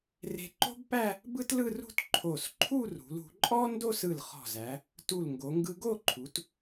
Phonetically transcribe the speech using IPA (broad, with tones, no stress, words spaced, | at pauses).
re̤˧ǃo̤˥bpæ˥˧ | bɯ˥tlɯ˥˧rṳ˥˧t ǃʰo˧˩s ǃʰu˥˧rṳ˩˧lṳ˩˧ǃʼɔ˥ ndo˥˧sɯ˧˩l χɔ̤˧˩zæ˩˧ | tu˧˩lŋɡo˩˧ŋɡɯ˧ ɡo˥˧ǃʰu˩˧t